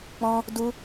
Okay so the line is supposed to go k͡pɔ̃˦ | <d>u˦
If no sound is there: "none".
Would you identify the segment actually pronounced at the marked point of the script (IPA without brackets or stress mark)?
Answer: d